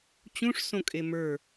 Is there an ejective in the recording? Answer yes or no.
yes